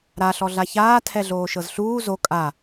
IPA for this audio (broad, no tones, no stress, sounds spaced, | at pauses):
ɾ a ɬ ɔ ɮ a ç aː tʰ ɛ ɮ oː ʃ ɤ z ɬ uː z o kʼ a